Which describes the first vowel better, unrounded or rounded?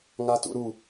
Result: unrounded